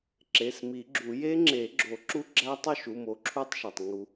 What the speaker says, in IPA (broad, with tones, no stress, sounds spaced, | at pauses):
ǁ e˩˧˩ s m i˨˩˦ ɡ͡ǁ u˨˩˦ j e˦˥ ŋ͡ǁ e˨˩˦ ɡ͡ǁ o˨˩˦ ǁ u˦˥ ɡ͡ǁ æ˦˥ tˤ o˥˧ ʃ u˩˧˩ m o˦˥ ǁʰ u˥˧ tˤ ʃ ɒ˩ tˤ ŋ u˨˩˦